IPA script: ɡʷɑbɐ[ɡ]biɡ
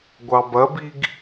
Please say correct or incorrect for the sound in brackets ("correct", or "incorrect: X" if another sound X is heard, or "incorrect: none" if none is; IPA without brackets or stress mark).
incorrect: none